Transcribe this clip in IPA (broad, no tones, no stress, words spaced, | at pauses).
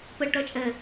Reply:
pəɭʈɜt͡ʃʼɛ